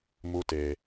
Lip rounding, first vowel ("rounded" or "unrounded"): rounded